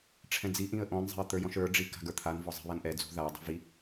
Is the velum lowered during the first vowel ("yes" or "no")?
yes